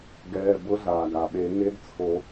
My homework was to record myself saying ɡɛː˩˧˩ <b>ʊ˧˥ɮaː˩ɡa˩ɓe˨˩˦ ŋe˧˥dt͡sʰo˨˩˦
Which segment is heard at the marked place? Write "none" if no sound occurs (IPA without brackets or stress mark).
b